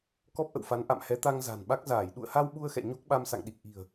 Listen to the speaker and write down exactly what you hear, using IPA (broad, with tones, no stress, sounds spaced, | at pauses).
k ɔ˦˥ p̚ ʔ ə̰˧˨ w f a˨˦ n ʔ a̰˧˨ m h ɛ˨˦ t̪ a˧ ŋ z a̤˨˩ n ɓ a˦˥ k̚ z aː˧˩ j ɗ ṵ˧˨ ə̯ h a˧ w ɓ u˧ ə̯ x ɛ̰˧˨ ɲ o˦˥ k̚ ɓ a˧ m s a̰˧˨ ŋ ɗ i˨˩ k̚ ʔ i̤˨˩ ə̯